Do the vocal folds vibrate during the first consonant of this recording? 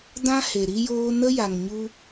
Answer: yes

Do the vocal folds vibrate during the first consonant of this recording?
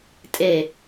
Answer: no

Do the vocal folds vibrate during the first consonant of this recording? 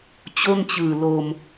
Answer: no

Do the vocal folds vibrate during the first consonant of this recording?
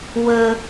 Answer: yes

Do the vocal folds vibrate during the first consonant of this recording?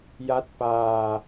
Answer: yes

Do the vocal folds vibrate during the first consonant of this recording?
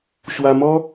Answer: no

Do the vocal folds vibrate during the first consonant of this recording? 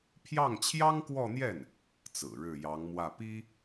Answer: no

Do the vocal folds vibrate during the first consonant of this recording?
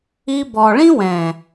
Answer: yes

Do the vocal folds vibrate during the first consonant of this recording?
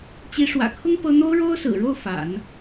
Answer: no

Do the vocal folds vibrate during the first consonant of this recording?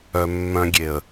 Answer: yes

